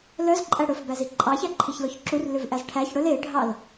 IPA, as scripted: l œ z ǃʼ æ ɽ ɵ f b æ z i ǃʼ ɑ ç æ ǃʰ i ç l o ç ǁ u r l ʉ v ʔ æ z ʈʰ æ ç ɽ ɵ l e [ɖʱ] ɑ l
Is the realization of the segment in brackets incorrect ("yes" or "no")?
no